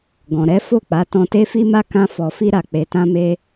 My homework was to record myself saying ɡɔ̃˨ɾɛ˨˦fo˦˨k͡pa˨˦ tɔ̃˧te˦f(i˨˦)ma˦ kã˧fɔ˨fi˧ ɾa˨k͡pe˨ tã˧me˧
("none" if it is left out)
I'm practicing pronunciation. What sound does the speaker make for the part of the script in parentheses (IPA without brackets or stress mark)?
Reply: i˦